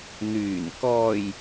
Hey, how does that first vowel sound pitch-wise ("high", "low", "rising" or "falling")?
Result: low